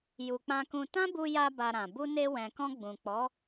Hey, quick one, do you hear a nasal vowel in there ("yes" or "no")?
yes